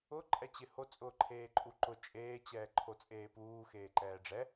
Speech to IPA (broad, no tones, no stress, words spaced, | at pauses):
ʊ ǃʼɛt͡ɕɪho t͡sʼʊːǃʰeːǃʼuǃʊ t͡ʃʼeː t͡ɕɛːǃʰot͡sʼeːpuː xeːǃɛːɖ͡ʐɛ